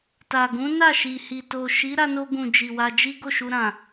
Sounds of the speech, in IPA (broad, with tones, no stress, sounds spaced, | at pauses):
t a˨ ɡ ũ˨˦ n a˦˨ ʃ i˨ h i˨ t o˨ ʃ i˨˦ ɾ a˧ n o˧ ɡ ũ˨ d͡ʒ i˨ w a˧ d͡ʒ i˦ ɡ o˦˨ ʃ u˧ ɾ ã˨